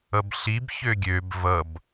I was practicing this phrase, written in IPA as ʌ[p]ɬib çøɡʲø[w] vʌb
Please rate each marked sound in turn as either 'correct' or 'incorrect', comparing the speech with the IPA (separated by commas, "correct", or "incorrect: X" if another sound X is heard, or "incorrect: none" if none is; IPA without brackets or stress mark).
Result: incorrect: b, incorrect: b